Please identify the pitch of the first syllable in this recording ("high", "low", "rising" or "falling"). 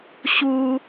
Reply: high